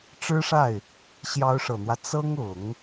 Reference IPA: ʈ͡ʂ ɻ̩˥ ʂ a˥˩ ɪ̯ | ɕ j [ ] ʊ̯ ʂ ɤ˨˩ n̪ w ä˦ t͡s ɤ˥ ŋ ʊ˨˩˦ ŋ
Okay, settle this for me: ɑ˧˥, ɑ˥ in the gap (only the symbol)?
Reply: ɑ˧˥